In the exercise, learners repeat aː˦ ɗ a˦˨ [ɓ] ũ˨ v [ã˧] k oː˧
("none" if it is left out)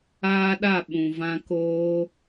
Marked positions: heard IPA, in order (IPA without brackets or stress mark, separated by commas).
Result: ɓ, ã˧